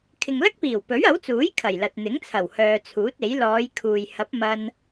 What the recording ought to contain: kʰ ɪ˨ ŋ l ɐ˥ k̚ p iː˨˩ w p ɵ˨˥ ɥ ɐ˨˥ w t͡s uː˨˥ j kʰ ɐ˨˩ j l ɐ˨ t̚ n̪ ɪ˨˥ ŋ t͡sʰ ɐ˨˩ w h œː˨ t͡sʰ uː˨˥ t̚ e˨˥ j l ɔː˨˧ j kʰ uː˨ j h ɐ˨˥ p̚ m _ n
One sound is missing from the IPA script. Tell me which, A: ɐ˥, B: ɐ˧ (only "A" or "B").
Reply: B